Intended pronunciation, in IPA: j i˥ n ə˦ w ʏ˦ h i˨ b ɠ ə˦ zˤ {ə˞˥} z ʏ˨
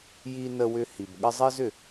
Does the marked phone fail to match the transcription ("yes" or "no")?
yes